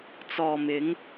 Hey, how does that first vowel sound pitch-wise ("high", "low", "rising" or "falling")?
low